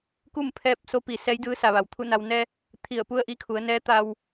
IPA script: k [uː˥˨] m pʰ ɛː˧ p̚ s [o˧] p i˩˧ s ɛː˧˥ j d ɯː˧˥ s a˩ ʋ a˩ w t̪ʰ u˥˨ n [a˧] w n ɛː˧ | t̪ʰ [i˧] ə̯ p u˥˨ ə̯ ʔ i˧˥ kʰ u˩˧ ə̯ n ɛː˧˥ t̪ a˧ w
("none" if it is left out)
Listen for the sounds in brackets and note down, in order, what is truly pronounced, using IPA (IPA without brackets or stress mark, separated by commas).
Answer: u˥˨, o˧˥, a˧, i˧˩